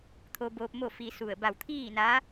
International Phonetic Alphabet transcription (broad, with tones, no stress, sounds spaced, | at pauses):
t̪ʰ o˧ b oː˧ p̚ m o˥˨ f i˧ s u˧˩ ə̯ b a˧˩ w t̪ʰ iː˥˨ n aː˧˥